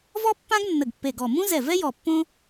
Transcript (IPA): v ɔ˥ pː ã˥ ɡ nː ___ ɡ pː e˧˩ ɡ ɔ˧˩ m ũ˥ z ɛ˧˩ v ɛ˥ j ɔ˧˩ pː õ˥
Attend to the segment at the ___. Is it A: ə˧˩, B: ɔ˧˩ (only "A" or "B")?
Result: A